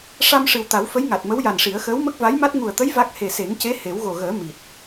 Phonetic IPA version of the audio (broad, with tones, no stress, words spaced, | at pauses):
ʂa˧m ʂɨ˨˩wt̪a˨˩˦wfə˧˥j ŋa˨˩t̚mə˧˥wja˨˩nʂi˨˩˦ə̯ xəː˧˥wmə˦˥k̚va˧˥jma˦˥t̚ ŋu˨˩ə̯t̪ə˧˥j va˦˥k̚ he˨˩se˨˩˦ŋce˧˥ he˨˩˦wɣo˨˩ɣəː˨˩˦ mi˨˩t̚